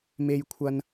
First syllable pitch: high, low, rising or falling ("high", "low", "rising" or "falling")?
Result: high